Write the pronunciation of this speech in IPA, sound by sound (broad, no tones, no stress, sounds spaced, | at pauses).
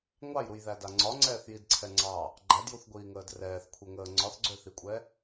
ŋʷ ɑ j ɾ u j ð æ d a ŋ͡ǀ ɒ ŋ͡ǀ ɛː θ j i d ǀʰ ɛ ŋ͡ǀ ɑ | ɡ͡ǃ æ d j u θ ɡʷ iː ŋ əː d r ɛː θ kʷʰ ɛ ŋ əː ŋ͡ǀ ɒ θ ɡ͡ǀ ø θ i kʷʼ ɛ